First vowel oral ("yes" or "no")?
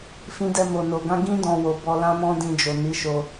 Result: no